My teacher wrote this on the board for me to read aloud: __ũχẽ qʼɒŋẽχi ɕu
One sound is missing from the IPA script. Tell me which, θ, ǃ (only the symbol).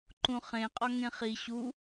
ǃ